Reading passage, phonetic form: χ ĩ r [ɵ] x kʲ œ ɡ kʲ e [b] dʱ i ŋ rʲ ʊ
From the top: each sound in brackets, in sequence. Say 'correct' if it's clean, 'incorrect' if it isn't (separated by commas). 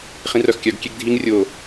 incorrect, incorrect